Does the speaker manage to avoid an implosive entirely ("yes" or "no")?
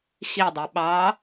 no